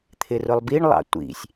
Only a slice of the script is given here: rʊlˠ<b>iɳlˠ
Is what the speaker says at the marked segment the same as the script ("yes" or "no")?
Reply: yes